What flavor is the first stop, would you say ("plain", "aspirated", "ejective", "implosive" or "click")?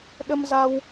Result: implosive